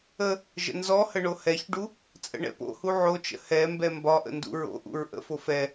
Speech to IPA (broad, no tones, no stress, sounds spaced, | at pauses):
ə | ʒ ə̰ n z ɔ h ə ɳ o h ɛ ç ɖ u | t͡sʼ ə̰ ɳ ɛ̰ p o̰ h u ʕ o t͡ʃ ə̰ h ɛ m b ɛ m b ɒ ʔ ə̰ n d ṵ ɹ o̰ ʔ ṵ ɹ ʔ ə̰ f o f ɛ